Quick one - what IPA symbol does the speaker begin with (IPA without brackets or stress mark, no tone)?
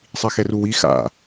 sˤ